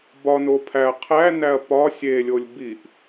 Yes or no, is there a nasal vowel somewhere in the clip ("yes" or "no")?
no